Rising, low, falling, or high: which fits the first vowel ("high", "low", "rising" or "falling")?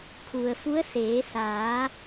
low